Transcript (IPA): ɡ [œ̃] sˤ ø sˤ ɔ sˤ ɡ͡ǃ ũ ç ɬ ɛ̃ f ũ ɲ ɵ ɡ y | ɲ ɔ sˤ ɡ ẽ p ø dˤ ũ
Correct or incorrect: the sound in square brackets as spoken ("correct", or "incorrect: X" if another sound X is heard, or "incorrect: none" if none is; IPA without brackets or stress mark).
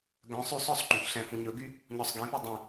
correct